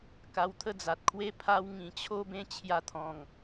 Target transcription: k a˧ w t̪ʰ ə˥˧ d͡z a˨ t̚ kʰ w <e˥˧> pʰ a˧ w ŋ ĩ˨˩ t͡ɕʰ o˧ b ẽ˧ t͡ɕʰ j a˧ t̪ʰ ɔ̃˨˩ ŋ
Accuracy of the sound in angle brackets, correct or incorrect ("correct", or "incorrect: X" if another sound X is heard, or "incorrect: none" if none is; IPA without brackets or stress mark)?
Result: incorrect: e˦